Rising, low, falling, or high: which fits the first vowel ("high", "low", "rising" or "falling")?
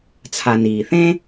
low